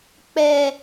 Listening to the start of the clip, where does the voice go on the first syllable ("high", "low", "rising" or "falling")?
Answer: low